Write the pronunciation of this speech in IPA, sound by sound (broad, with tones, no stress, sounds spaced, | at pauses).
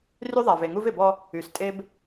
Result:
r y˦ ðˤ a˨ v e˨ ŋ u˦ v ɪ˨ b ɔ˦ | y˨ s tʼ e˦ b